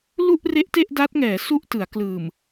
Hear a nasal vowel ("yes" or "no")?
no